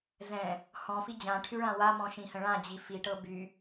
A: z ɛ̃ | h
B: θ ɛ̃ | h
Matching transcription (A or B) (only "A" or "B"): A